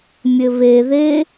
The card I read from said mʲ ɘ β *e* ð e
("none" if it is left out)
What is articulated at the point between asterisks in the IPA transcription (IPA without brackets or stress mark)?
e